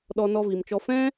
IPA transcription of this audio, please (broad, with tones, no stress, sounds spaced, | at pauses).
ɗ ɔ˧ n ɔ˧ v i˨ m t͡ʃ ɔ˧ f ɛ̃˦